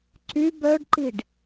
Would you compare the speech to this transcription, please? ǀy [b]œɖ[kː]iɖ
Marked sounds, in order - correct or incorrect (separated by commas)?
correct, incorrect